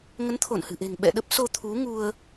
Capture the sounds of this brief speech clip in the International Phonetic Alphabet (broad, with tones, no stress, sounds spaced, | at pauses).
ŋ ə˨˦ n t̪ʰ o˧˩ n h ɨ̤˨˩ ʔ e̤˨˩ ŋ ɓ ɛ̰˧˨ ɗ ə˦˥ p̚ s o˧ t̪ʰ u˨˦ ŋ u˧ ə̯